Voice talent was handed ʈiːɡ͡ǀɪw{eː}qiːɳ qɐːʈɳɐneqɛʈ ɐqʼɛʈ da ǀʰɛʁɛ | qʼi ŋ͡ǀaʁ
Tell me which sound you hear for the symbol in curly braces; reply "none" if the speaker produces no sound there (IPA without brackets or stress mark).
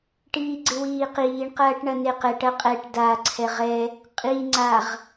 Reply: iː